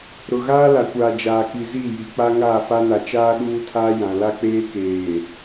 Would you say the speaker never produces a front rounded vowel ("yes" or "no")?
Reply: yes